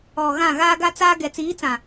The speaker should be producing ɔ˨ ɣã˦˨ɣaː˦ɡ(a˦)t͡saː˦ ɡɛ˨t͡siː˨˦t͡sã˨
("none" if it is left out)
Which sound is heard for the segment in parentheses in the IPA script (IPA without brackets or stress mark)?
a˦